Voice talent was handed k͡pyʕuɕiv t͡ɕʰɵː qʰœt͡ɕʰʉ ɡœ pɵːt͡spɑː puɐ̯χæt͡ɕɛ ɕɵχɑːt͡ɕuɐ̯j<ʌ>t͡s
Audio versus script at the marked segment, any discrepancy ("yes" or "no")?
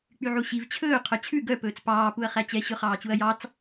yes